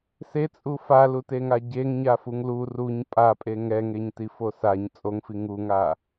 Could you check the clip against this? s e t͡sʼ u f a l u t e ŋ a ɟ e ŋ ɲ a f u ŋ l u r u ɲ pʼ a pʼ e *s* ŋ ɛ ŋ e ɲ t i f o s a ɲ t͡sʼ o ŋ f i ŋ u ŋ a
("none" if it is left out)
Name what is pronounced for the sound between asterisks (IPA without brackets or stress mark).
none